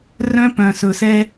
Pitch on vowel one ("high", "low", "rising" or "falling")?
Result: high